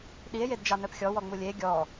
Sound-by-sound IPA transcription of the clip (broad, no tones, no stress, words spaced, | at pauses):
ɗie̯jedd͡ʒɑ nœpxʲɔwɔŋ͡mu lʲe ɡʲɔ